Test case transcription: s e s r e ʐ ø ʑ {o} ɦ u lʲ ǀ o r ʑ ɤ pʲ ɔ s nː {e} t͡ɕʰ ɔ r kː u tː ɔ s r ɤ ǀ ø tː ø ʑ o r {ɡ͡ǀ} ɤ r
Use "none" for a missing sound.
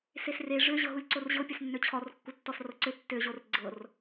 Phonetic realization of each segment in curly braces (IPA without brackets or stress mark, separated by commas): ɤ, ø, ɡ͡ǀ